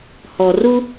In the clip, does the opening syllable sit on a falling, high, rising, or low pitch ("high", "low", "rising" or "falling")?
low